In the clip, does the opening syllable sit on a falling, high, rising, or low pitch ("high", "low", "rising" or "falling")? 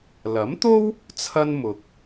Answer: rising